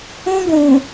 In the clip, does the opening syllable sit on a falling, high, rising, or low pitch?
high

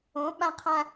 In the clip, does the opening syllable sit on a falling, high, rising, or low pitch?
rising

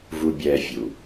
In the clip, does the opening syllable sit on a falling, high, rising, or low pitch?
low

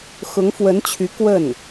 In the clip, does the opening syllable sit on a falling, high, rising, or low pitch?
rising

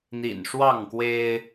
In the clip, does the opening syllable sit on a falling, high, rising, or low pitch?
low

